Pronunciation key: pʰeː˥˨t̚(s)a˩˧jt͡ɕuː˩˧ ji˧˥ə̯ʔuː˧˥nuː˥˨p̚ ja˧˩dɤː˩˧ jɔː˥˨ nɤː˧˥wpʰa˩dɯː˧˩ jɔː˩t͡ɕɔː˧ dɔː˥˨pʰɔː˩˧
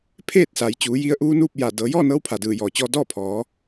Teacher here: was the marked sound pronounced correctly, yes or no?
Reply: yes